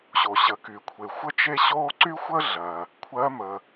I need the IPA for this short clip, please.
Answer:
ɕ o˩ ɕ ə˩˧ k y˩ kʷʰ e˩ xʷ ə˥ t͡ʃ e˥ ɕ o˥ ǀ y˥ xʷ ə˥ ɮ ɜ˩ | kʷʰ ɜ˧˥ m ə˩

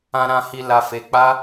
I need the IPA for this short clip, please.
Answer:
ã˨ ɾ ã˨ h i˨ l a˨ f e˨ k͡p a˧

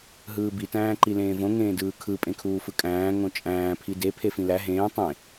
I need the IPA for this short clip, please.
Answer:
ɦ ɯː b i t æ̃ː ǃ i l ẽː v õ ŋ ẽː d ɯː kʰ ɯ pʼ ẽ kʰ uː f ɯ kʼ æ̃ː ŋ õ t͡ʃʼ æ̃ː pʰ i d e pʰ e f ĩ l æ ɦ ẽː tˤ ẽ

